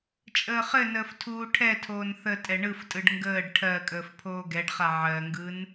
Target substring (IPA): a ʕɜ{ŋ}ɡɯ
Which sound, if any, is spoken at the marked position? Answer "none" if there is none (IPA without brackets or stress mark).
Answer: ŋ